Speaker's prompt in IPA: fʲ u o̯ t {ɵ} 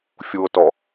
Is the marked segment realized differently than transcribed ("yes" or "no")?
yes